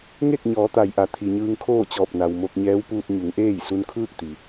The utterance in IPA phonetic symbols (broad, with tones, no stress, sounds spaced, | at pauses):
ŋ e˥˨ k̚ ɲ ɔː˩˧ t̪ a˩ j ʔ a˩ t̪ʰ i˩ ɲ ɯː˧ ŋ kʰ oː˥˨ t͡ɕ ɔː˧˩ p̚ n a˩ w m o˧ k̚ ɲ ɛː˧˥ w p uː˧ t̚ ɲ u˩˧ ŋ ʔ eː˥˨ j s u˧ n kʰ ɯː˥˨ k̚ t̪ i˩